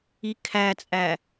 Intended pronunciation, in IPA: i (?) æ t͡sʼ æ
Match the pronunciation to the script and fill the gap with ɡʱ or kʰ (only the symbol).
kʰ